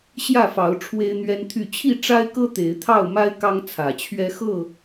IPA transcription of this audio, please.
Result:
ɕjä˥˨fɑ˨˦ʊ̯ ʈ͡ʂʰwe˦ɪ̯n̪ɥɛ˦nt̪ʰy˥˨ t͡ɕʰi˥˨ʈ͡ʂa˦ɪ̯kɤ˦ t̪e˨˦ɪ̯t̪ʰɑ˥˨ʊ̯ma˦ɪ̯ kɑ˦ŋt͡sʰä˨˩t͡ɕʰɥɛ˦ xɤ˥˨

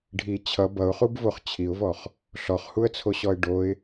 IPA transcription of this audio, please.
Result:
ɖʱi t͡ɕʰʌ bʌʊ̯χubvoχ t͡ɕʰiʊ̯vɔχ | ɬɔχhuə̯t͡sʰoɕɔɪ̯ ɖoɪ̯

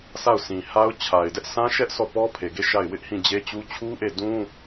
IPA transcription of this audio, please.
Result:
sa˦˨ʊ̯sʰĩ˨ha˦ʊ̯ t͡ɕʰa˨ɪ̯dɛ˦ʔsʰã˦ʃɛ˦ʔ sʰɔ˦˨pɔ˦pʰe˨ɡe˦˨ ʃa˦˨ɪ̯ wɪ˦ʔhĩ˦˨d͡ʑe˦t͡ɕu˦ t͡ɕʰu˦ʔe˦˨ dũ˦

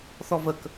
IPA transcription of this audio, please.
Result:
θɔvək

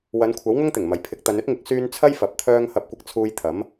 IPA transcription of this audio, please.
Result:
wɐ˨˧nkʷʰɐ˨˥w ŋʊ˥ŋt̪ɪ˨˩ŋ mɐ˨jpʰɪ˨˥k̚ t̪ɐ˨˧nɵ˥t̚ŋɪ˨˥k̚ syː˥n t͡sʰɐ˥j fɐ˨˥p̚t̪ʰœː˥ŋ hɐ˧p̚kʷɪ˧k̚ t͡sʰuː˧j t̪ʰɐ˨˥m

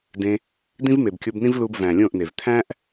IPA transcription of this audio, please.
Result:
dẽ˧ | d̪ĩ˦vme˨bkʲo˧bnĩ˦v lu˧bvæ̃˨lʲõ˦˨ʔne˨v t̪ʰæ̃˦ʔ

